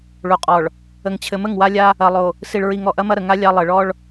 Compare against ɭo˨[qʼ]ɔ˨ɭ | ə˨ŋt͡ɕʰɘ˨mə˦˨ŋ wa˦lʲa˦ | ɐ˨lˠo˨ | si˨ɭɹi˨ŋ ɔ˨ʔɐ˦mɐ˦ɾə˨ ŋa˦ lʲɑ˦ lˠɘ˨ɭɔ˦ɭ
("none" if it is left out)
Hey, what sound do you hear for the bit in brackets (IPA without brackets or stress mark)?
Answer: qʼ